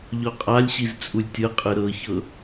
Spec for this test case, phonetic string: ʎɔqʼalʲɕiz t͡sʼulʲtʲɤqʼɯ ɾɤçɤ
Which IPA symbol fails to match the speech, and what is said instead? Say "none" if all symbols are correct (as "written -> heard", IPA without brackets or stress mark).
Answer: none